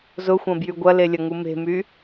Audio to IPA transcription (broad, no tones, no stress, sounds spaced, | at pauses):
z ʊ xʷ ɐ̃ b j y ɡʷ ɐ l e lʲ ɐ ŋ u m e̤ m y